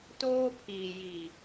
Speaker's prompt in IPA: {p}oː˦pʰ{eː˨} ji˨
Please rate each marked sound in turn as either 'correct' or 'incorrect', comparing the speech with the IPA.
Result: incorrect, incorrect

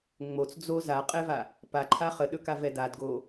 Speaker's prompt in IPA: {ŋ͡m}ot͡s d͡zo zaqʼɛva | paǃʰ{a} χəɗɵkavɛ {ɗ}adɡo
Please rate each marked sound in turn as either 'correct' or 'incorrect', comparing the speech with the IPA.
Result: correct, correct, incorrect

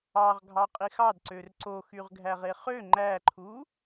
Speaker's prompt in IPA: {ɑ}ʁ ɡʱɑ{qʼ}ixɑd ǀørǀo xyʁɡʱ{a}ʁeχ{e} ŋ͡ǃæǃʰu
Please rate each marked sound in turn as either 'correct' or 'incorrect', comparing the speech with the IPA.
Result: correct, correct, incorrect, incorrect

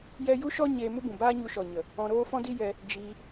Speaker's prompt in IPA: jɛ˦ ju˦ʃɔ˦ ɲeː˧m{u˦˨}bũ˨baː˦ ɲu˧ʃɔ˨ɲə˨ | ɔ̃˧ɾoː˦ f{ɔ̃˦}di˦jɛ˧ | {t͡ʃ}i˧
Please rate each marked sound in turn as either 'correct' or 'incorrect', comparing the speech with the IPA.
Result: incorrect, correct, incorrect

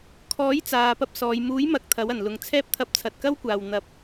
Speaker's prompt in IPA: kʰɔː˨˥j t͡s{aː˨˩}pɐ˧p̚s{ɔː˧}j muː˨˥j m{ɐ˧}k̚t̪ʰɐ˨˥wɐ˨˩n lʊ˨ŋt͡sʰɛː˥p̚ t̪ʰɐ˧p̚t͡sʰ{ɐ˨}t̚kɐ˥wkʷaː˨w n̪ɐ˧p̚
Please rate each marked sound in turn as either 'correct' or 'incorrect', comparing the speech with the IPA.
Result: incorrect, incorrect, correct, correct

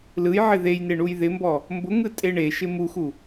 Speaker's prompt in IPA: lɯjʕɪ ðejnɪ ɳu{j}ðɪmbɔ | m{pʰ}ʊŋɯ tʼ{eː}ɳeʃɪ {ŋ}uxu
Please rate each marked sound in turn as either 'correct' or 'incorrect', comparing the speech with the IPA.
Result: correct, incorrect, incorrect, incorrect

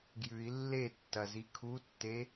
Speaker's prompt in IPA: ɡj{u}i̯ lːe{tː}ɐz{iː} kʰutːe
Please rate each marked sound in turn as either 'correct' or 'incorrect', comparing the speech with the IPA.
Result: incorrect, correct, incorrect

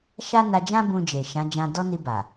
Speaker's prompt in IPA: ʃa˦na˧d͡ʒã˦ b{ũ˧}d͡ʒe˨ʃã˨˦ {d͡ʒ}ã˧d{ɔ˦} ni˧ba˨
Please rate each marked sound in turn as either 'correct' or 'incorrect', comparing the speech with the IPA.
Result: correct, correct, correct

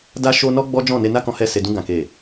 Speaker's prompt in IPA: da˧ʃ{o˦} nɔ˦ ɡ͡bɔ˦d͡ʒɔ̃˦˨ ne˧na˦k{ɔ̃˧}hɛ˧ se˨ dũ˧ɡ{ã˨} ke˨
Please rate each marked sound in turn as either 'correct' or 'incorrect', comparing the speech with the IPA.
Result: incorrect, correct, correct

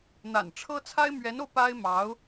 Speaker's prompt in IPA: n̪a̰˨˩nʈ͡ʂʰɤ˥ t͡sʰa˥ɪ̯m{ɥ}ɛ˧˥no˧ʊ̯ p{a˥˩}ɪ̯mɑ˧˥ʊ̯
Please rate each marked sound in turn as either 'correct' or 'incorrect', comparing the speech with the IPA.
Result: correct, incorrect

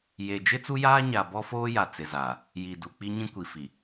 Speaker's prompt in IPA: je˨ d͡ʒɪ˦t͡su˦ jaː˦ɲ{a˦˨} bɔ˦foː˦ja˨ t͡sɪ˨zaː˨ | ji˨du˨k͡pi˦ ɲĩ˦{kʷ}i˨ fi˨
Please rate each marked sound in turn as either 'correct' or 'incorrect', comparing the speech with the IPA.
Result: incorrect, correct

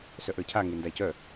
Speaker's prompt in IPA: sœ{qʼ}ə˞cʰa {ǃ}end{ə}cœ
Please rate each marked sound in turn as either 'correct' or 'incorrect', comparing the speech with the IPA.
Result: incorrect, incorrect, incorrect

